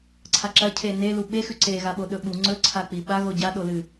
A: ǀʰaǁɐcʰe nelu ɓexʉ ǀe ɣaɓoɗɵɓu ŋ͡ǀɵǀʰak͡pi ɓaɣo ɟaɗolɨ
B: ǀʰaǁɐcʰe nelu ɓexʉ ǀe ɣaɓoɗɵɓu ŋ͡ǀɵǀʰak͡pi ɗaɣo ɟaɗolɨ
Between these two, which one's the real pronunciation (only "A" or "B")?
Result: A